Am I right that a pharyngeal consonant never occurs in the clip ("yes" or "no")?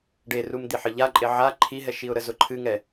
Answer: no